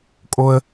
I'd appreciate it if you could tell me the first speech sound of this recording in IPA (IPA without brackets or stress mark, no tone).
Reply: kʼ